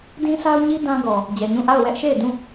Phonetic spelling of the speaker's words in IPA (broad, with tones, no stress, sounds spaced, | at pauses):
d ĩ˦ sʰ a˦ ʊ̯ ɲ i˦ d ã˦ ɡ ɔ˨ | d͡ʑ ɛ˨ ɲ ũ˦˨ ʔ a˦˨ ʊ̯ w ɛ˦ ʔ ʃ e˦˨ ɪ̯ d ũ˦˨